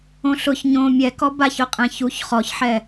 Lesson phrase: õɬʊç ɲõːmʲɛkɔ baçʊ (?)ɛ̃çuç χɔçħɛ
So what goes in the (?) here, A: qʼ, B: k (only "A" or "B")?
A